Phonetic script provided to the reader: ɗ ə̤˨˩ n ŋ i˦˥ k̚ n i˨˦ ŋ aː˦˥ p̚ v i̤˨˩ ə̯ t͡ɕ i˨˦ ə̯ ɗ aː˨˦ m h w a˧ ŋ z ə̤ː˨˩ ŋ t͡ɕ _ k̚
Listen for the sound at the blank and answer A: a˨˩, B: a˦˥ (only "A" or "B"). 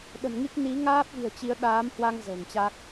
B